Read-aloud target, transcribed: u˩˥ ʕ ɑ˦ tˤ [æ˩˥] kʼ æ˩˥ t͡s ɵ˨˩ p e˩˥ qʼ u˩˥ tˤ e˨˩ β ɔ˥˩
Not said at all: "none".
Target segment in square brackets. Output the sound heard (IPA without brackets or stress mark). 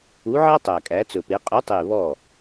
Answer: æ˨˩